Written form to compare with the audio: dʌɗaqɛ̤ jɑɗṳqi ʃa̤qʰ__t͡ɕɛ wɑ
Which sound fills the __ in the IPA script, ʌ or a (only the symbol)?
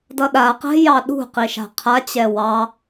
a